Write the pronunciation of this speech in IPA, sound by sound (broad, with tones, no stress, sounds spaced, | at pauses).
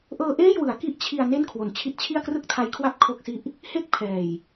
ʔ ɤː˧ ʔ eː˥˩ j w ɯ˩˦ a̯ k i˦˥ ʔ t͡ɕʰ i˧ a̯ n e˥˩ n kʰ w o˨˩ n t͡ɕʰ i˦˥ t̚ t͡ɕʰ i˥˩ a̯ k r ɯ˥˩ k̚ tʰ a˧ j kʰ w a˥˩ p̚ kʰ o˥˩ k̚ s i˥˩ ʔ | h e˥˩ k̚ pʰ ɛː˨˩ j